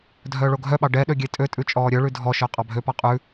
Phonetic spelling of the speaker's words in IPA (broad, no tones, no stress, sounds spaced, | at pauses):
dʱ œː ɭ o ɡʱ œ ɓ ɑ ɖ ɛ ɗ ø ɡʲ e tʼ ø tʼ ʉ t͡ʃʼ ɔː ɾʲ œ ɭ ʉ dʱ ɔ ʃ œ qʼ ɑ bʱ ø p ɑ qʼ ʉ